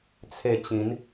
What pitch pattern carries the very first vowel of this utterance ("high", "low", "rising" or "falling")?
falling